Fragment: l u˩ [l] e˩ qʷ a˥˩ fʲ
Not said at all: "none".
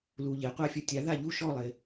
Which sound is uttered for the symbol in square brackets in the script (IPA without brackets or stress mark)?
ʎ